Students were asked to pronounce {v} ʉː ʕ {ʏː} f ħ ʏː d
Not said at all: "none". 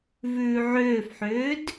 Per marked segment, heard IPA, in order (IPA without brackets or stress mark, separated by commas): v, ʏː